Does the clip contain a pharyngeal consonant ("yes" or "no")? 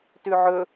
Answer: yes